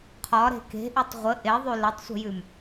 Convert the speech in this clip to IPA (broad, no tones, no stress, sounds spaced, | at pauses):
qʰ ɒ ɾ e̤ k e̤ ʔ y tˤ ʁʷ ə ʔ e ðˤ y l ə tˤ sʷ ə̤ j ʉ m